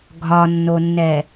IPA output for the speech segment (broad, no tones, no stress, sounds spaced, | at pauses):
ɡʱ ɒ nː o nː ɛ